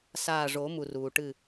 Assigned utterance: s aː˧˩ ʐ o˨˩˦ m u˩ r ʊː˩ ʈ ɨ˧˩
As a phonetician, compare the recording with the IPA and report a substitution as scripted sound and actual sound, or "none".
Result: ʊː˩ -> uː˩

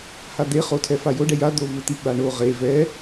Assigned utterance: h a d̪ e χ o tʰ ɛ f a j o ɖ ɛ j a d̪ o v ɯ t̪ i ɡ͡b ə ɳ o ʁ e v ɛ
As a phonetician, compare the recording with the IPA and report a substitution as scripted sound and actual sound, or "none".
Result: ə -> a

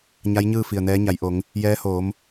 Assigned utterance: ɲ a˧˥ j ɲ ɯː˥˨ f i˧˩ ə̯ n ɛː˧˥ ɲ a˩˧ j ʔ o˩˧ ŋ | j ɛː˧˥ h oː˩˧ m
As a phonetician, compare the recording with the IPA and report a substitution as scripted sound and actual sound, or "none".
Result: none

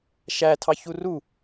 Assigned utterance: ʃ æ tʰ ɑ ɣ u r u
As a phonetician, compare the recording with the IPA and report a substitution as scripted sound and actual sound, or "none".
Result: ɣ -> ç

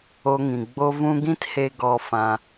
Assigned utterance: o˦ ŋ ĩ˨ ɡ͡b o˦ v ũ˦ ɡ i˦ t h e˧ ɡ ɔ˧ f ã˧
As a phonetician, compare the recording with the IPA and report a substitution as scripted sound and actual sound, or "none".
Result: i˦ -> ĩ˦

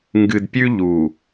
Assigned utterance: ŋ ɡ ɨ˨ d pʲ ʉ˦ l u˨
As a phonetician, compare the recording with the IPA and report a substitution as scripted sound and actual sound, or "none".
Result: l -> ʎ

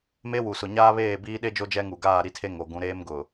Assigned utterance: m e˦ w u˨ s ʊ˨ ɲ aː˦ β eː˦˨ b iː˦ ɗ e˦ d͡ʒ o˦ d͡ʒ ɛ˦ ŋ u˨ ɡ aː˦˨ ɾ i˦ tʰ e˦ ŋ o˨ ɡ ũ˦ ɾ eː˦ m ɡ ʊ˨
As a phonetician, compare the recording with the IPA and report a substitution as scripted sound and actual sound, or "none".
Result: none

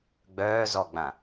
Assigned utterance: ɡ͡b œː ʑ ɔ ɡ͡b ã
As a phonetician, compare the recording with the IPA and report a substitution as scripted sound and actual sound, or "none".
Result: ʑ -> z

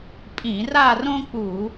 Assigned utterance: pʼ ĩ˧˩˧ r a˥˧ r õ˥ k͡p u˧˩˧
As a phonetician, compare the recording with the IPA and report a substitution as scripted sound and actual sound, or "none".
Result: none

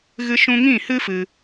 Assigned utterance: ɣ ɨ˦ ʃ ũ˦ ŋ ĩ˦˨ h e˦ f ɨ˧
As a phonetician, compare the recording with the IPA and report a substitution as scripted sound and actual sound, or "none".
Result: e˦ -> ɨ˦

